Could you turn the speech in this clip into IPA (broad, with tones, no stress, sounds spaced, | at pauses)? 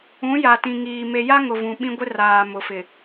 ũ˨˦ j a˨ t ĩ˨ ŋ iː˨ m e˨ j a˦ ŋ ʊ˨ v ũ˨ ɓ ĩ˦ ɡʷ ɪ˦ r aː˨ m ʊ˨ f ɪ˨